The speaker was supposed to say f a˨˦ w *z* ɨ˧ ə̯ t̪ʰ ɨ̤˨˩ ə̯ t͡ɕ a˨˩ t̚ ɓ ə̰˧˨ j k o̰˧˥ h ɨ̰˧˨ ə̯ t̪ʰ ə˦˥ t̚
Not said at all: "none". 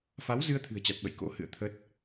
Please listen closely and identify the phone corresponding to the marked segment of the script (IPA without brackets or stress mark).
z